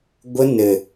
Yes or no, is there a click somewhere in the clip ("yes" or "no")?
no